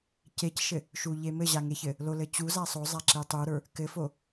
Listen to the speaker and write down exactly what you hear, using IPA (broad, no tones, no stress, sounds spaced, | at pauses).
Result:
c e c ʃ ɘ | ʃ u ʎ e m ɘ ʑ a ŋ e ç ɘ | l o l ɘ t͡ɕ u z a sˤ o zˤ a ǁ e tˤ u ɾ ə˞ | k ɘ f o